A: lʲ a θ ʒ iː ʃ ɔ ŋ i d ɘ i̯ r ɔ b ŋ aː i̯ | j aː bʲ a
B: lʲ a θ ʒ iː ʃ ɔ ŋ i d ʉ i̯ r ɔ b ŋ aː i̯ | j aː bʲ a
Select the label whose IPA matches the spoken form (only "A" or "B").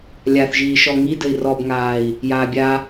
A